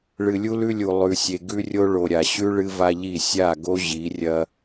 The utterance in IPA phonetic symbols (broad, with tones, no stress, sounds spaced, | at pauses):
ɭ ɨ˨ lʲ u˦ l ʉ˦ lʲ u˨ lˠ ʉ˨ sʲ e˨ ɡ ʉ˦ rʲ o˦ ɭ o˨ ɾʲ a˨ ɕ ʉ˦ ɭ ɨ˦ v a˦ ʎ i˦˨ sʲ a˦˨ ɡ o˦ ʑ i˨˦ rʲ ɐ˦